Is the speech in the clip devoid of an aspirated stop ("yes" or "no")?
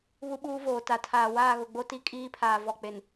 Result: no